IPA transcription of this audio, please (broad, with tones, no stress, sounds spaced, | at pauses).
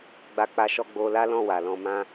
ɡ͡b a˧ k͡p a˧ ʃ ɔ˧ ɡ͡b o˧ l a˦ l ɔ̃˦˨ w a˨ l ɔ̃˧ m ã˧